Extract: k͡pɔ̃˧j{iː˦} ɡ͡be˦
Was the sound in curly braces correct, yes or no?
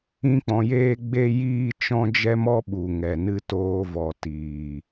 no